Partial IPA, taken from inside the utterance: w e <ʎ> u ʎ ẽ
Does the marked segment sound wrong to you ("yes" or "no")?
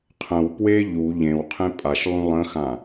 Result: no